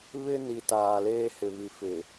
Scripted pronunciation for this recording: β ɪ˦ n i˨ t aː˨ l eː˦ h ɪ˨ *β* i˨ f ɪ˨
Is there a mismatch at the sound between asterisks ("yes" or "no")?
no